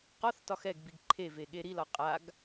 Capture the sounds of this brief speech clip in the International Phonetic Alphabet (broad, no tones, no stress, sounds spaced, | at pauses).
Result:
q ɒ θ t ɒ x ɛ ɡ b i ɡ ǃʰ e v e ɠ e ɾ i l ɒ qʼ a ɡ